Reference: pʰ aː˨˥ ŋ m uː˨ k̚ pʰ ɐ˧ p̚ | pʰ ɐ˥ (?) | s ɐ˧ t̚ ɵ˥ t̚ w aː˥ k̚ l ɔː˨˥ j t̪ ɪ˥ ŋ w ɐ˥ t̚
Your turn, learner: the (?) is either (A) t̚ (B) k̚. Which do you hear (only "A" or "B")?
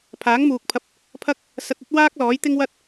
B